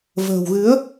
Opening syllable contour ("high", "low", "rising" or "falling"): low